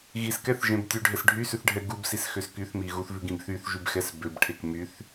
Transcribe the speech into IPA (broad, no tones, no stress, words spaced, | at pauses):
ɣiskɛθʒẽb tʲʉɖʱɛs ɖʱysʉθɖʱɛ ɡubsisxøs kyθmi ɣuθvʉɡĩb θyθʒybxɛs bøbʈʰek myθ